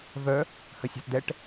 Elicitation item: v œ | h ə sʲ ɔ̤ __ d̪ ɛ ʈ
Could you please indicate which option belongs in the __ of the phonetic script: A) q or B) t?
B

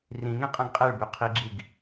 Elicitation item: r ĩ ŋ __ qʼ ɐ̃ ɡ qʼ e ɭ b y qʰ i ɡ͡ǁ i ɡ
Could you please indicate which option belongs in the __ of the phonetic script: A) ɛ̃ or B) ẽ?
B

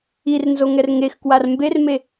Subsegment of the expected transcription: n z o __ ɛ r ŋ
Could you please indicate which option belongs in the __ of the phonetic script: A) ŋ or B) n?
A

